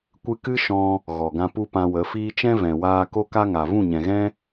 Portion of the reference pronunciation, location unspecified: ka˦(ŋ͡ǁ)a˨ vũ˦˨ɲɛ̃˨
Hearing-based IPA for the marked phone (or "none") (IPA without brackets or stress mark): ŋ